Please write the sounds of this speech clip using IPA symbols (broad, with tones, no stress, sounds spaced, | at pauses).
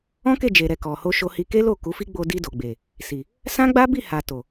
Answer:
ɔ̃˦ k e˦˨ d͡ʒ e˨ ɾ ɛ˨ k ɔ˨ h o˧ ʃ o˧ h i˧ k e˦ l o˦˨ k u˨˦ f i˦ ɡ͡b o˧ d i˧ d o˨ ɡ͡b e˨ | s i˨ | s ã˦ ɡ͡b a˦ b i˦˨ h a˨ t o˨